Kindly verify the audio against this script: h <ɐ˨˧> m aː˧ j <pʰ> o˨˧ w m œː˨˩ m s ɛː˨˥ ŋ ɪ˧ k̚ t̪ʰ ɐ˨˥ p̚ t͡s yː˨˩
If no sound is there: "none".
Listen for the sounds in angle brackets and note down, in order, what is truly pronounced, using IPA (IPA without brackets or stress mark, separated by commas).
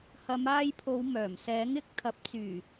ɐ˨˧, pʰ